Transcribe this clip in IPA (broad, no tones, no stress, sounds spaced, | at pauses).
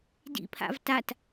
d ḭ pʰ a̰ v t a t